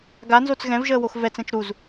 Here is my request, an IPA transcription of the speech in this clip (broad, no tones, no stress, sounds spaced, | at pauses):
ɡ a n z o t͡s ɣ ɛ̃ v ʒ əː w o x v ɛ t͡s ɛ̃ t͡ʃ ɾ u z